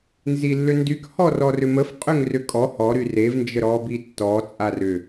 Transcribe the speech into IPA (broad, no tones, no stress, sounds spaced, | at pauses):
n z i lː ʏ n d y k h ɔ r ɔ r ʏ m ə f qʼ ʏ ŋ r ʏ kʼ ɔ h ɔ ɾ y r e v n d͡ʒ ə ɾ ɔ b i tː ɔ t͡sʼ a r ʏ